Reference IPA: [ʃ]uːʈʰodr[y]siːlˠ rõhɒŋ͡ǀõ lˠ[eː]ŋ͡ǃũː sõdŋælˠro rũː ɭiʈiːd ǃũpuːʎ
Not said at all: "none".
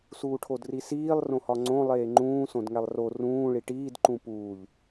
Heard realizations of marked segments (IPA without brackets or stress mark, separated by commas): s, i, eː